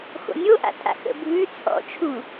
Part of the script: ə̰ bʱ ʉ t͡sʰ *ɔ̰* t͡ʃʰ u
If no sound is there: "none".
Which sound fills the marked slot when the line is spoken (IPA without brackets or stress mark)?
ɔ̰